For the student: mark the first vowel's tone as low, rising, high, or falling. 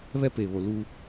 high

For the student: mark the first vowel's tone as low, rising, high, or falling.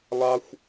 high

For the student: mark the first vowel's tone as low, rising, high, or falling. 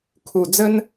low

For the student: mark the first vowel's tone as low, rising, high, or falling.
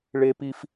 high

